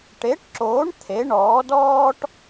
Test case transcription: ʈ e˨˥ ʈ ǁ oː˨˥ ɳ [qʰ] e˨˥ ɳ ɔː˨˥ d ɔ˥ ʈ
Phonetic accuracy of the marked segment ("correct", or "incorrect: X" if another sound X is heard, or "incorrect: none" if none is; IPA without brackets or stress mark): incorrect: t̪ʰ